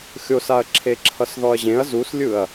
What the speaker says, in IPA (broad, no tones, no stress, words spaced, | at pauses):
xʲosaɐ̯ ǁʰeǁʰʌsðɔɐ̯ʑẽɐ̯ zuslʲɯɐ̯